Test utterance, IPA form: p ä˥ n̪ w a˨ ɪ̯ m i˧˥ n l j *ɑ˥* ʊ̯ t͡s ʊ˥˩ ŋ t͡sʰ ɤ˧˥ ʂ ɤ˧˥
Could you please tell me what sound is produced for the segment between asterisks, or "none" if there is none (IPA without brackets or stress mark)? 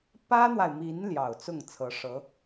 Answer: ɑ˨˩